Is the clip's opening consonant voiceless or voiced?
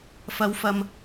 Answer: voiceless